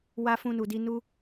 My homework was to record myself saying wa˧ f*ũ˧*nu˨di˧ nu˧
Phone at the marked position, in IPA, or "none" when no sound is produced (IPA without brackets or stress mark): ũ˧